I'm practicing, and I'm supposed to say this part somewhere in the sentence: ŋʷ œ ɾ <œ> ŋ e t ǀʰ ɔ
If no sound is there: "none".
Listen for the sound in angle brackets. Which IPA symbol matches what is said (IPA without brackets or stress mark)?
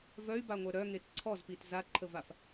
œ